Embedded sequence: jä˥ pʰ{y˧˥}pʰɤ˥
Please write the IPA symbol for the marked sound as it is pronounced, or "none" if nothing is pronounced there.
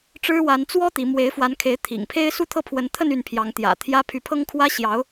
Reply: y˧˥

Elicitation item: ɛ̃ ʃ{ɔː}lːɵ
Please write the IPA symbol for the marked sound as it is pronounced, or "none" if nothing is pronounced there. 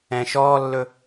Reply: ɔː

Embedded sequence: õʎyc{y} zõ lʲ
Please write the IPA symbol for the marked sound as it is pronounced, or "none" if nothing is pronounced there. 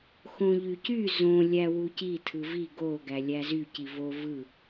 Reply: y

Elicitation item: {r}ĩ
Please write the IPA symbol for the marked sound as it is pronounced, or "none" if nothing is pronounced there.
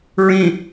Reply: ɹ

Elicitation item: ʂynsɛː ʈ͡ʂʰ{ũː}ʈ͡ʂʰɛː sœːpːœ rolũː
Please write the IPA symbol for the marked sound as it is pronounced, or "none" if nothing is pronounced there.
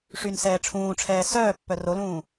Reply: ũː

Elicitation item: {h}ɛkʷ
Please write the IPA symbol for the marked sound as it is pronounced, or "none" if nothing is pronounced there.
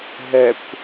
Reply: ɦ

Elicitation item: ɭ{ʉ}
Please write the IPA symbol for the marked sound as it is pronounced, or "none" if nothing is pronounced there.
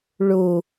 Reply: u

